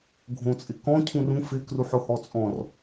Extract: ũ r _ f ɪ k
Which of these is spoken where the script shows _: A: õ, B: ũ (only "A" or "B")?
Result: B